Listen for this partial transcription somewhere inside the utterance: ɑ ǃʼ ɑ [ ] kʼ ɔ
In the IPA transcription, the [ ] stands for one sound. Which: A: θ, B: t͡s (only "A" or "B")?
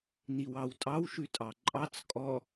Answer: B